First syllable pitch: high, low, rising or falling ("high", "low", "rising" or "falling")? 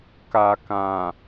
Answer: low